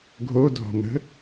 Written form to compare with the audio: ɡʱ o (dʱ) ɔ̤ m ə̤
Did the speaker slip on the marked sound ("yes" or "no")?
no